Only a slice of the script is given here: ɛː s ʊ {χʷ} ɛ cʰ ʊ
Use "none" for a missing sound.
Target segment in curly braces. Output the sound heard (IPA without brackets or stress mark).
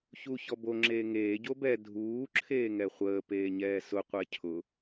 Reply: qʷ